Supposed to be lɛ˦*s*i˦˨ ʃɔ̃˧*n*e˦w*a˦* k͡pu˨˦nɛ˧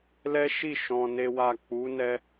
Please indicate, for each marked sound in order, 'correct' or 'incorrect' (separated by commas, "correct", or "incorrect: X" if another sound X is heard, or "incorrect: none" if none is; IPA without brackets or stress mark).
incorrect: ʃ, correct, incorrect: a˦˨